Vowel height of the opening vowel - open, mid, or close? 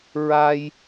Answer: open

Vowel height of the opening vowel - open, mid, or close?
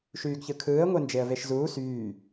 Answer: close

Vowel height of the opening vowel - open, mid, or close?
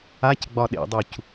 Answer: open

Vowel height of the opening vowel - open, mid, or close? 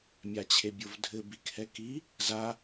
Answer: open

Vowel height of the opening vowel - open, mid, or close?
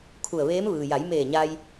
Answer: close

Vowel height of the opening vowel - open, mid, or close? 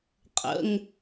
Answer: mid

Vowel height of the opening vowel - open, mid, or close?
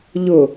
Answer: close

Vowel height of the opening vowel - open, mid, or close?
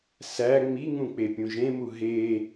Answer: open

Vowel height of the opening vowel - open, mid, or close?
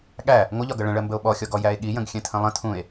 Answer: open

